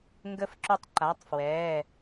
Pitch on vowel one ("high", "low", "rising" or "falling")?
rising